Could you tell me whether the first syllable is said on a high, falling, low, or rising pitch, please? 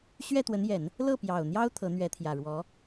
falling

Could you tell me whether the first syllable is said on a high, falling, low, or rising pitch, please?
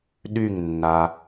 falling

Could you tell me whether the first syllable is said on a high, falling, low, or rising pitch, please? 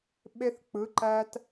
high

